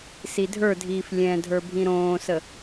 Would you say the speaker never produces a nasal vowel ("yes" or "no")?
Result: no